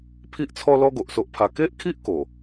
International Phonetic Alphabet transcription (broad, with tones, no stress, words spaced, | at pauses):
pʰi˦ʔt͡sʰɔ˦lɔ˦ ɡo˨ʔso˦ʔpʰa˧ ke˦ʔkʰi˦ʔ ko˨˩